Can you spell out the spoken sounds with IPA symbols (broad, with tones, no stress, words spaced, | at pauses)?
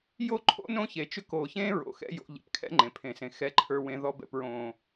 jo˦ ǃʰo̰˦nõ˦çe˨t͡ʃʏ˦ koː˨çẽː˦ ɹo̰˨ xɛ̰˦jo̰˨˦ ʎɛ̰˨pkʰɛ̰˦ŋ͡ǃẽ˨ pʰẽ˨sẽ˨ xɛ˦ǃʰə˞˦wẽ˦ ðɔ˦bɛ̰˦pɹõː˦